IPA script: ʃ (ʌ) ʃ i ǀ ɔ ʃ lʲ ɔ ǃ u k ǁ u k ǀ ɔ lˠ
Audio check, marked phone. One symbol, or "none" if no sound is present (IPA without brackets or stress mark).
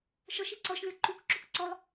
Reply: ɔ